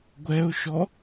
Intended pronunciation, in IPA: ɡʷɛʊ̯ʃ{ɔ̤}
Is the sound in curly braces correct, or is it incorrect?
incorrect